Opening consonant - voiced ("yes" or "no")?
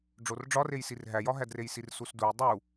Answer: yes